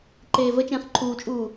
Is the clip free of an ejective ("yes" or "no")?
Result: no